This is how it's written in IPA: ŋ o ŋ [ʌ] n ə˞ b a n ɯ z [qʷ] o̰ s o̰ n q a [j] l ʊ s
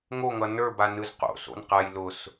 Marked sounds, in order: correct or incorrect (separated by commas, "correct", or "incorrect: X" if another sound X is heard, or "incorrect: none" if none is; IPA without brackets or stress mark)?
correct, incorrect: q, correct